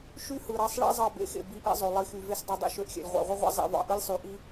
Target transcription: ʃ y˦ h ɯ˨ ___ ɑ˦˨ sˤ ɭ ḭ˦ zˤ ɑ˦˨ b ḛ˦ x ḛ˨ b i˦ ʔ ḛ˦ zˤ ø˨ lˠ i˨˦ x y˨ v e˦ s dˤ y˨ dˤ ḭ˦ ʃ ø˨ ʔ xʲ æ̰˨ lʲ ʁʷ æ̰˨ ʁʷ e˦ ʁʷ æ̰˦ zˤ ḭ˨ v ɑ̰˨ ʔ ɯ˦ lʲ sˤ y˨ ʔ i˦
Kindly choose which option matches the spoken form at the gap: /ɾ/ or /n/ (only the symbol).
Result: ɾ